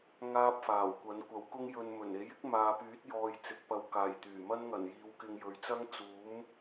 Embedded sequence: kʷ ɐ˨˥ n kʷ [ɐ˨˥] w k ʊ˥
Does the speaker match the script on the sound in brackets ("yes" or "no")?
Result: yes